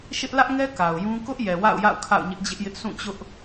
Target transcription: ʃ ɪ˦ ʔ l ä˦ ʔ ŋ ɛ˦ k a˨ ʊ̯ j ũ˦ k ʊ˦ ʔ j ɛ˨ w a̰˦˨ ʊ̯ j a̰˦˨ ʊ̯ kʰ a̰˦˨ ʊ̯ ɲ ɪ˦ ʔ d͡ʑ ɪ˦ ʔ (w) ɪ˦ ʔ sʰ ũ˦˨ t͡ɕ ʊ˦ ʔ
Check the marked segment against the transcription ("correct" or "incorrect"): incorrect